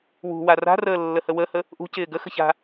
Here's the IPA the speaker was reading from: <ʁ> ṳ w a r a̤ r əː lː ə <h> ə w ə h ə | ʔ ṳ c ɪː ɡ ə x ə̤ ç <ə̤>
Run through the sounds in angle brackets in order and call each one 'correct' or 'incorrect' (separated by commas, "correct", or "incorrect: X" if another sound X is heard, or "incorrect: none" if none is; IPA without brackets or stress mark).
incorrect: w, correct, incorrect: a̤